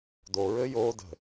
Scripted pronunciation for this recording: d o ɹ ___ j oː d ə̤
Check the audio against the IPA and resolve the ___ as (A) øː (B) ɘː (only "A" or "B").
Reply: B